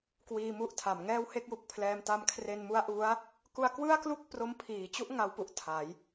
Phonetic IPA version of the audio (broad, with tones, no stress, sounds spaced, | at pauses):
k w iː˧ m u˥˩ ʔ tʰ a˩˦ m ŋ ɛː˥˩ w h e˥˩ k̚ j u˨˩ k̚ pʰ l ɛː˧ m t a˧ m kʰ r e˧ n m u˦˥ a̯ ʔ u˦˥ a̯ | k u˧ a̯ k w ɯ˥˩ a̯ k l u˥˩ k̚ p r o˦˥ m pʰ iː˨˩ t͡ɕ u˥˩ ʔ ŋ a˦˥ w p u˨˩ ʔ tʰ a˩˦ j